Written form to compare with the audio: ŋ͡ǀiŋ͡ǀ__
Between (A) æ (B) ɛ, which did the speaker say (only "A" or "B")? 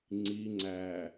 A